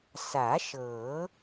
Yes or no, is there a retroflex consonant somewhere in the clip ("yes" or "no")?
no